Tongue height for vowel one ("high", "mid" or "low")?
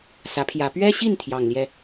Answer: low